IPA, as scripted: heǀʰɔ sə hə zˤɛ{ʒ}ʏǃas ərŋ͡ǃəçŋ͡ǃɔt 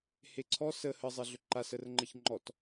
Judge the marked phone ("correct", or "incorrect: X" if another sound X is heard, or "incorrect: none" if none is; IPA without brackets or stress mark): incorrect: ɮ